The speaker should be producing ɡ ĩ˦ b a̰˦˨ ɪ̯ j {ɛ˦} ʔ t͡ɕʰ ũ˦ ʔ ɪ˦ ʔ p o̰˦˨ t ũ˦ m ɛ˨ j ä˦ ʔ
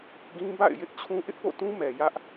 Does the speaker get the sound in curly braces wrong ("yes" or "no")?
yes